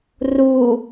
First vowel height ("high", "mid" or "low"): high